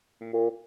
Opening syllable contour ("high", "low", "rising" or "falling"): high